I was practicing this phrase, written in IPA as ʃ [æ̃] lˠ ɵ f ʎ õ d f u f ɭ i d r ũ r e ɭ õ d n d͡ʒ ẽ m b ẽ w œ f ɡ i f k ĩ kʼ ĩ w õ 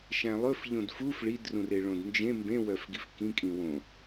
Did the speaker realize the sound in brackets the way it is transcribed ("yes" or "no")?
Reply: yes